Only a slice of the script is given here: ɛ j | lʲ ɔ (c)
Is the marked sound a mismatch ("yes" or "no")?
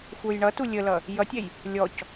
no